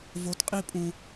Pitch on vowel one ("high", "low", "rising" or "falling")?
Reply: rising